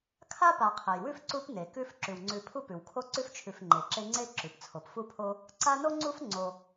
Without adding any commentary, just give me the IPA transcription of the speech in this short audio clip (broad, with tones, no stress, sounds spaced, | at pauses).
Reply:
kʰ a˥ p a˨ qʰ e˩ j w ʉ˥ f ǀ u˦ p n e˩ k ʉ˦ f ǁ ʉ˩ w ŋ͡ǀ ʉ˨ pʰ u˥ p ʉ˩ w kʰ o˥ ǀ ʉ˥ f t͡ʃʰ ʉ˨ f ŋ͡ǃ e˩ ǁ e˦ ŋ͡ǀ e˥ ǁ ʉ˩ p t͡sʰ o˩ p f u˥ pʰ o˥ | ǀ a˦ n o˥ ŋ͡ǀ u˥ f ŋ͡ǀ o˨